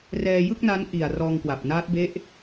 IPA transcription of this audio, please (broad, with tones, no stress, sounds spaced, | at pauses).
r ɛː˧ j ɯ˥˩ k̚ n a˦˥ n ʔ i˨˩ a̯ r ɔː˧ ŋ k w a˨˩ p̚ n aː˦˥ t̚ b e˦˥ ʔ